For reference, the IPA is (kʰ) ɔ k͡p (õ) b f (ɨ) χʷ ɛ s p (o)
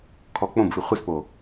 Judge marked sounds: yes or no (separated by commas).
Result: yes, yes, yes, yes